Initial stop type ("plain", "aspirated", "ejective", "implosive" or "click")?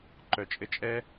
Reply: click